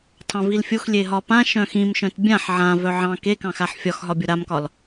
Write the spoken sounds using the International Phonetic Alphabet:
tʰ ɑ̃ v i l fʲ o x lʲ e ɦ ɒ p ã ʃ œ̃ x ĩ m ʃ œ̃ t bʲ ã ħ ʕ ã v œ ʕ ɑ̃ k e k ɑ̃ x a ħ fʲ ɒ x ɦ ɒ bʲ o ɾ a m k ɒ l

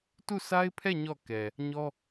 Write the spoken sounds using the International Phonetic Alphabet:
t u˦˨ sʰ a˦ ɪ̯ pʰ ɛ˦˨ ɲ ɔ˦˨ k ɛ˨ | ɲ ɔ˦

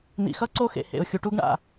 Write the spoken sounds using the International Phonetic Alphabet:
n̪ ḭ˨ x ʌ˦ ǀ o˦ x ḛ˨ h ḛ˨ ʊ̯ xʲ u˨ ʈ u˦ ɡ ɳ a̰˦˨

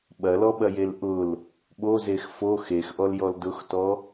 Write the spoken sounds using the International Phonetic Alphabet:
ɓ ɐ l ɔ ɓ ɐ j e l ʔ ʊ l | ɓ o z e x f o x e x ʔ ɔ l j ɔ l d ʊ x t ɔ

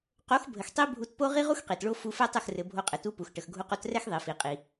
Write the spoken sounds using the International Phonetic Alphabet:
q o˨˦ x bʱ ə˨ x tˤ i˦ bʱ u˧ t p o˦ ʁ i˦ ʁ u˦ x q i˨ t ɭ o˧ f u˧ f ɛ˦ tˤ ɘ˦˨ x r ɘ˨ bʱ o˧ qʼ ɘ˨˦ t u˦ p u˨ x ʈ ə˨ x ɡʱ u˧ q o˧ t r ɛ˦ x ðˤ i˨ f i˨ qʼ i˨

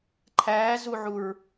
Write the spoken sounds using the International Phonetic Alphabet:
ǃʰ æː z u ʕ u ɹ

